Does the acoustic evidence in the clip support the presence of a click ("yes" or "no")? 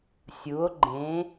yes